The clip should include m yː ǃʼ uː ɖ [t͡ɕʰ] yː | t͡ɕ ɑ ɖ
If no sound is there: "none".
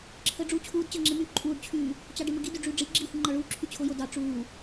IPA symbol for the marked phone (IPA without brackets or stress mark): t͡ɕʰ